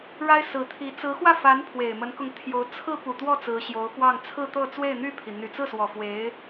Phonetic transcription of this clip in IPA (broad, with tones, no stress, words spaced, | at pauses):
ɻa˥ɪ̯sɹ̩˧˥t̪ʰi˧˥ t͡sɹ̩˧˥xwä˥˩ fa˧˥n pʰwe˨˩ɪ̯mə˧˥nkʊ˧ŋ t̪ʰjo˧˥ʊ̯ t͡sʰɹ̩˥ pu˨˩t̪wɔ˥˩ t͡sɹ̩˧˥ɕjo˧˥ʊ̯pwɑ˥˧ŋ t͡sʰɹ̩˥˧t̪ɤ˥˧ t͡swe˥˧ɪ̯n̪y˥˩pʰi˩ n̪y˨˩t͡sɹ̩˥˩swɔ˨˩ fwe˧˥ɪ̯